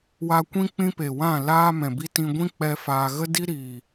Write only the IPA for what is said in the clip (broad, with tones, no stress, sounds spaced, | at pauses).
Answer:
w a˧ kʷ ĩ˦ k͡p ĩ˦ p e˨ w ã˦˨ l aː˦ m ɛ̃˨ b i˦ t ĩ˧ ɡʷ ĩ˦ k͡p ɛ˦ f aː˧ ɣ ə˦ d i˦ ɾ iː˨